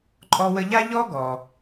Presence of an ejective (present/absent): present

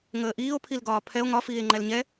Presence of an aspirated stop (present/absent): present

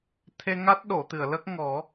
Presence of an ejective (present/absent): absent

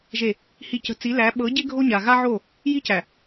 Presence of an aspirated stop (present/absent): absent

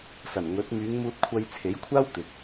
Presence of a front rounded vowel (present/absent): present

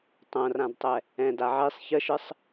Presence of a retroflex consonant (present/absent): absent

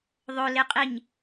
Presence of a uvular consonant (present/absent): present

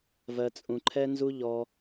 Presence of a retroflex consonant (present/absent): absent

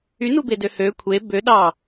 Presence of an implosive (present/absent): present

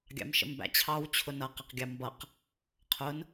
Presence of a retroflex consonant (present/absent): absent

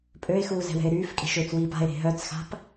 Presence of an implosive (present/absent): absent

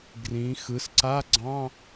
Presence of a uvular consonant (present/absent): absent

